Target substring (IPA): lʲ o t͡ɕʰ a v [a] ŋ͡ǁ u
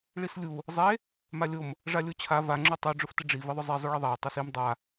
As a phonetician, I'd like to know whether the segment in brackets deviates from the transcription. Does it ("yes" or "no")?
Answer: no